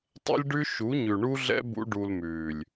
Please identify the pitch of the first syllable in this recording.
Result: high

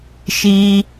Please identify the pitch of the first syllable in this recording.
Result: high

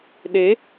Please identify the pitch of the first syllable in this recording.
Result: rising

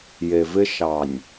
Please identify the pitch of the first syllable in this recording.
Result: low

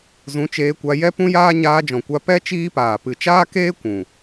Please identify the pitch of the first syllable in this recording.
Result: rising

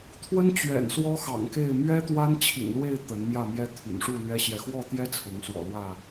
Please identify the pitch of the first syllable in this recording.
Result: high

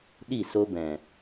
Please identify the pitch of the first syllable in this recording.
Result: falling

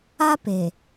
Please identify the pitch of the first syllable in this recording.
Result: high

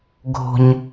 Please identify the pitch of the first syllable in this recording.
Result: low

